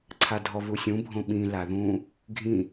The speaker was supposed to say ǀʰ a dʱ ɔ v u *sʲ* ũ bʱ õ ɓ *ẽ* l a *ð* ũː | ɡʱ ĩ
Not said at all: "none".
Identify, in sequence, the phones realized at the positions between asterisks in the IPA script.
sʲ, ĩ, ð

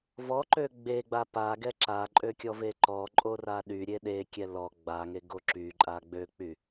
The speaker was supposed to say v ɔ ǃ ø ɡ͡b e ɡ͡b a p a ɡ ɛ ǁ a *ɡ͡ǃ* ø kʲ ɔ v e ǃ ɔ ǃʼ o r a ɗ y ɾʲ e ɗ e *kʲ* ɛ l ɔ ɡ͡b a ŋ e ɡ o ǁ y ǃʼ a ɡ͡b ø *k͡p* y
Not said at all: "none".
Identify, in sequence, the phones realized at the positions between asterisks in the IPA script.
ǃʼ, kʲ, k͡p

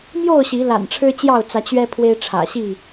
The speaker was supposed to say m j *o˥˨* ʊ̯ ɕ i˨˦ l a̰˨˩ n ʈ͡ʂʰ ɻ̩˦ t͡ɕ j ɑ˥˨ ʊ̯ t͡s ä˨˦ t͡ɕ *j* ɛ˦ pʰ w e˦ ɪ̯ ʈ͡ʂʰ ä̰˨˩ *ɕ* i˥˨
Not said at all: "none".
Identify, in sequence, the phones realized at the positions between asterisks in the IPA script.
o˥˨, ɥ, ɕ

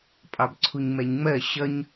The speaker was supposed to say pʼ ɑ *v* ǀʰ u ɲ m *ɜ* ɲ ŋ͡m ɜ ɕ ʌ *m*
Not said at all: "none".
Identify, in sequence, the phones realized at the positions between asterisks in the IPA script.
b, ɛ, ɲ

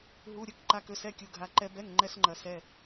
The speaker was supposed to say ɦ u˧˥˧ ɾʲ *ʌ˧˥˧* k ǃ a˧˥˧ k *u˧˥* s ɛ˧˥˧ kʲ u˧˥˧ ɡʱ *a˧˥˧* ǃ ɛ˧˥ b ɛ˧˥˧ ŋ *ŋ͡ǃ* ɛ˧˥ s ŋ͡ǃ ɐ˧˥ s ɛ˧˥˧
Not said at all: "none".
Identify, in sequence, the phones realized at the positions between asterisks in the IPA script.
ə˧˥˧, ø˧˥, a˧˥˧, ŋ͡ǃ

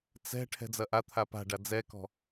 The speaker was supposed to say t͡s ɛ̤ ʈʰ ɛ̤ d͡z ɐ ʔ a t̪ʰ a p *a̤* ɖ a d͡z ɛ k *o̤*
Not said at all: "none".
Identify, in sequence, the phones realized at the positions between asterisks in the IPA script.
a̤, ɔ̤

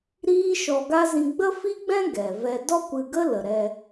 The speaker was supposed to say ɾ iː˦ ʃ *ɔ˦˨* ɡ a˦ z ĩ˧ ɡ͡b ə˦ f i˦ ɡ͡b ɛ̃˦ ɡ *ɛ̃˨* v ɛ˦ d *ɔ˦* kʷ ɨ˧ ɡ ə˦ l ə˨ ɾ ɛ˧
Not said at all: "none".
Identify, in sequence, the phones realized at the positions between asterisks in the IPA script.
ɔ˧, ɛ˨, ɔ˦

